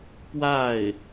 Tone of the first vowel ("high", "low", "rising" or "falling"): falling